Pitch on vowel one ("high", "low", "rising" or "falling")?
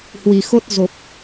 low